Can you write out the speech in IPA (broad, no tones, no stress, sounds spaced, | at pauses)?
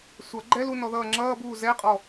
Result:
sʷ ʌ ɡ͡ǃ ɛ l u n ɔ ð ʌː ŋ͡ǁ ʌː b uː z ɛ qʼ ɔ